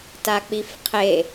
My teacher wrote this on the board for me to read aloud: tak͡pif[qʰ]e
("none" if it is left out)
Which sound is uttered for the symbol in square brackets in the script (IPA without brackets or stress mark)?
qʰ